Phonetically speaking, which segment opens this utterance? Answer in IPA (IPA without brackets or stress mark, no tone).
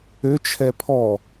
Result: ø